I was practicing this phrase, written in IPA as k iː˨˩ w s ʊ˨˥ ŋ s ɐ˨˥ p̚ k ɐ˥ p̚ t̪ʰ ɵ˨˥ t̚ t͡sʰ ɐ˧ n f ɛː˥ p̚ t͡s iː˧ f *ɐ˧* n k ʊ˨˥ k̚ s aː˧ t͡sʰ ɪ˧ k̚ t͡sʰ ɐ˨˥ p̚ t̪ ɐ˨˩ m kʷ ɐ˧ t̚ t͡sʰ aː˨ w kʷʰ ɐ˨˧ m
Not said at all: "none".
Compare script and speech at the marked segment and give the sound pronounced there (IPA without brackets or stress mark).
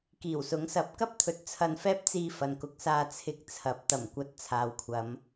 ɐ˨